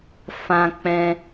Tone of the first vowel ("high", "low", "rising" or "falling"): high